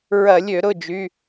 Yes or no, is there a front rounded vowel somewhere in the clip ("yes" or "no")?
yes